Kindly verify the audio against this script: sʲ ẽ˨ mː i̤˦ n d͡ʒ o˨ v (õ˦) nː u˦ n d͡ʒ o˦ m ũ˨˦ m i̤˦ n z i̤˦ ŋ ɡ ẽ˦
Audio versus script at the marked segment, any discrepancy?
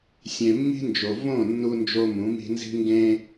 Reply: yes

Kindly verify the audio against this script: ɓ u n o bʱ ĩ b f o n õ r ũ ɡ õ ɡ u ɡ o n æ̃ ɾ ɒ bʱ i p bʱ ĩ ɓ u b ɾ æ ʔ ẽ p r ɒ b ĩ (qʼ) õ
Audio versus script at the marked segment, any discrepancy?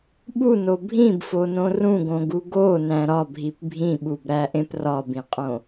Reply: no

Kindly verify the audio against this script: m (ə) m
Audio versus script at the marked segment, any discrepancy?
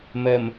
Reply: no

